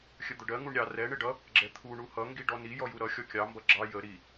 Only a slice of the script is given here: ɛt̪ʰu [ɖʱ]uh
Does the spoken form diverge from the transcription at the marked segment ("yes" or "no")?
yes